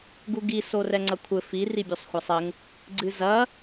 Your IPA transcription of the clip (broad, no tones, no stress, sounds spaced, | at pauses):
ɡ u ɡ i s o r ɛ ŋ͡ǀ ɐ kʷʰ ɘ f i r i bʲ o sˤ xʷ a sˤ ɘ ŋ | ɡ͡ǀ ɨ z ɐ